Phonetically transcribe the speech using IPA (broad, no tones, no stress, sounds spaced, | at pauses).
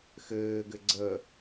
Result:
x ɘː ɡ ɘ ɡ͡ǀ ə